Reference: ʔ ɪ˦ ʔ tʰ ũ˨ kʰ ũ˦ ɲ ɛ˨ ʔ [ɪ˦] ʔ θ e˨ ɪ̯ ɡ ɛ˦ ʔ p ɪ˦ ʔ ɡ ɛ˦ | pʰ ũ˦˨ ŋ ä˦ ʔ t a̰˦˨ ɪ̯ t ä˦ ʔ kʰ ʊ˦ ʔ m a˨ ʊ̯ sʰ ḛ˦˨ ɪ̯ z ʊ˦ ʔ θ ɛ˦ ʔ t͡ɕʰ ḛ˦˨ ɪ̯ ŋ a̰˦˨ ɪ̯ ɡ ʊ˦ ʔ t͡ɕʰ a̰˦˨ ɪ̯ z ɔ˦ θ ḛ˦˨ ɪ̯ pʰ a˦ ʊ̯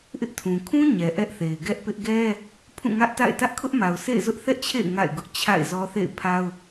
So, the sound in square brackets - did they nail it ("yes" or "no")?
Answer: no